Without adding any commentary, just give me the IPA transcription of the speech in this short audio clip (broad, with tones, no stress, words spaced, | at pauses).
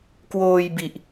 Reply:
kwoː˧jbi˨˩ʔ